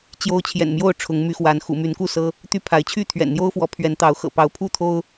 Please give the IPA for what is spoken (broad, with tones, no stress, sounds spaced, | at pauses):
t͡ɕ j o˦ ʊ̯ t͡ɕʰ j ɛ̰˨˩ n m j o˥˨ ʊ̯ ʈ͡ʂʰ ʊ˨˦ ŋ m y˨˦ x w a˨˦ n x ṵ˨˩ m y˨˦ n k u˥˨ s ɤ˦ | t̪ y˦ pʰ a˨˦ ɪ̯ t͡ɕʰ y˥˨ t̪ʰ ɥ ɛ̰˨˩ n n̪ j o˦ ʊ̯ f w ɔ˨˦ pʰ ɥ ɛ˨˦ n t̪ ɑ˨˦ ʊ̯ x ɤ̰˨˩ p ɑ˨˦ ʊ̯ pʰ u˥˨ t̪ʰ o˦ ʊ̯